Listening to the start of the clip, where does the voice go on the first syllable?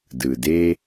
low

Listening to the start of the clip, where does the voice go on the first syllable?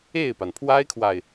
falling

